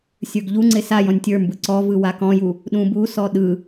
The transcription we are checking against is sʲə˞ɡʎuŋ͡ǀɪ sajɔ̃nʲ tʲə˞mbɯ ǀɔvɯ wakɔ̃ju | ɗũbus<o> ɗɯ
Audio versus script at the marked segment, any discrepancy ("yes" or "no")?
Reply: yes